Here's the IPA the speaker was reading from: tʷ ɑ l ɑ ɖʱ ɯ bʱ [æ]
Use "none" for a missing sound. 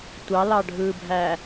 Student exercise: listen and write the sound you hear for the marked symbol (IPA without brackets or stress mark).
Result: æ